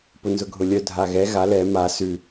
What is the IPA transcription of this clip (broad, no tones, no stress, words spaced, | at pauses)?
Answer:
pʊnzʊɡʱʊlʲœ dʱaɣɛ ɣa lɛ ma sʉ